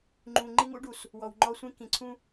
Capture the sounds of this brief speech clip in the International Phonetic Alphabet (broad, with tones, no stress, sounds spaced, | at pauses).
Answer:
ŋ͡ǃ ũ˨ ŋ͡ǃ i˦ ŋ ṵ˦ ɖ u˨ s | w ɔ˨ w ŋ͡ǃ ɔ˦ sʷ ĩ˦ k ĩ˨ ǀʰ ũ˦